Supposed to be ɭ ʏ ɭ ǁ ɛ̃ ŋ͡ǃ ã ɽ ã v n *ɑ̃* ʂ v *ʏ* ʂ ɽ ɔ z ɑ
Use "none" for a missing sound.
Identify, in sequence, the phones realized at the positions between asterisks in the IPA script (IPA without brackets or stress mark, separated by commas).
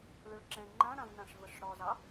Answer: ã, ə